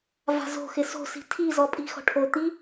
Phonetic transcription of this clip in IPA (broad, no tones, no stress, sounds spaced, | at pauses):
v a̤ z o̤ x ɪ s o̤ s i̤ tʰ i z ɔ pʼ i̤ x ɔ̤ ʈʰ o t̪ i